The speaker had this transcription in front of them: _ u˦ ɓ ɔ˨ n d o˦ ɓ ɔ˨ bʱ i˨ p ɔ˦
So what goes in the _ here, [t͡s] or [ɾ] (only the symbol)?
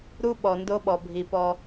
ɾ